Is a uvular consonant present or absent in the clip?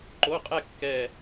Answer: present